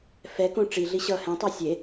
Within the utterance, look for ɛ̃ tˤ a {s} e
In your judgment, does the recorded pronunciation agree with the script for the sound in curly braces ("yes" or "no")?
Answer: no